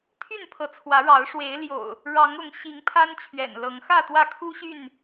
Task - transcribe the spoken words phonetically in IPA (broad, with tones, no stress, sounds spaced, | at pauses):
t̪ʰ y˥˨ n pʰ ɤ˨˦ t͡sʰ w ä˨˦ ɻ ɑ˨˦ ʊ̯ ʂ w e˨˦ ɪ̯ l j o̰˨˩ ʊ̯ | ɻ ɑ˨˦ ŋ ʊ˨˦ ŋ ɕ i˨˦ ŋ pʰ a˦ n t͡ɕʰ ɥ ɛ̰˨˩ n l ɤ˨˦ ŋ x ä˥˨ t̪ w ä˥˨ kʰ u˦ ɕ y˥˨ n